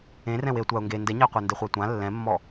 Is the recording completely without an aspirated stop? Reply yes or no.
yes